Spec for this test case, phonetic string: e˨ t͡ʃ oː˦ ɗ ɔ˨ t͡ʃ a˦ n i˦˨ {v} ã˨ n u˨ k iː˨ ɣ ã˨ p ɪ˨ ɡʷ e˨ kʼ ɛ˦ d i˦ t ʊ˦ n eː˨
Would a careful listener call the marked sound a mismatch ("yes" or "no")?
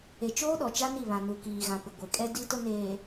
yes